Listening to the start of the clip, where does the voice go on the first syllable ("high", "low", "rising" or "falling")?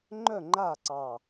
falling